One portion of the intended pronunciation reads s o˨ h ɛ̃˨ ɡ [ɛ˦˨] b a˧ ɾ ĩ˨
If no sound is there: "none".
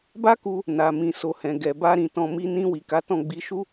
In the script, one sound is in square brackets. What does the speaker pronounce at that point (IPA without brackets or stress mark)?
ɛ˨